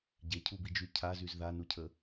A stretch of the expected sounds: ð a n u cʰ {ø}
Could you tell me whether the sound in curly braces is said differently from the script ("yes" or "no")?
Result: yes